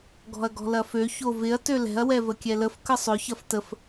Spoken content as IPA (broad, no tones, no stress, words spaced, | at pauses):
ɡɔ̤ɐ̯ɡɔ̤lɐfø çovɪɐ̯ tølɛ̤ɐ̯ wɛvəkʲɛləf kəsˤʏ çɐftəf